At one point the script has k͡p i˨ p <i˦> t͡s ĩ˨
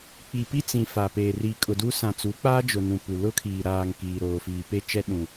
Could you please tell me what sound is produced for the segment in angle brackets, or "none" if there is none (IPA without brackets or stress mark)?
i˦